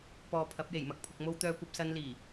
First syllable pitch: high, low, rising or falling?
low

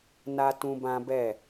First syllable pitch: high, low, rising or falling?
high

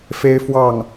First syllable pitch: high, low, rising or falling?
high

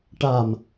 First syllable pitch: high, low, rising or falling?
low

